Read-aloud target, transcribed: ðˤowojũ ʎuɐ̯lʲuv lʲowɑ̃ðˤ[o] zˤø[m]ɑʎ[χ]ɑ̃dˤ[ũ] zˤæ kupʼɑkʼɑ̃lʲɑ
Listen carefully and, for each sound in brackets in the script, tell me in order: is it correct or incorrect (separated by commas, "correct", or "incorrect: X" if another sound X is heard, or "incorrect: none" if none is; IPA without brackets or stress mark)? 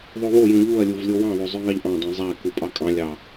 correct, incorrect: ŋ, incorrect: ʔ, correct